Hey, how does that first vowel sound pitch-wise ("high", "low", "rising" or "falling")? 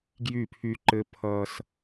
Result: falling